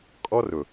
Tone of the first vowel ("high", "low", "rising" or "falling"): high